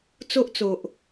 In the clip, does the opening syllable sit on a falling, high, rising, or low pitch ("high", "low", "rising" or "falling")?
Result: high